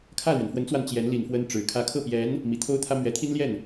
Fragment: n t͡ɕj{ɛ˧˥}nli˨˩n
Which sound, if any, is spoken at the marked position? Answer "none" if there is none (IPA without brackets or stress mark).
ɛ˧˥